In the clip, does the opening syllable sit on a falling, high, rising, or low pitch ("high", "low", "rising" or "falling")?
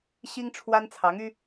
high